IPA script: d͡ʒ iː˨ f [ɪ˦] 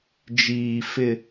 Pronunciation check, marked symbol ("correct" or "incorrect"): correct